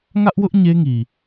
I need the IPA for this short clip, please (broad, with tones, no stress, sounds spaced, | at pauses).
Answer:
ŋ ä˦ ʔ w ʊ˦ ʔ ɲ e˦ ŋ i˨